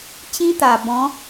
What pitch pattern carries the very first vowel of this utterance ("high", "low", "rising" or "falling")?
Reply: high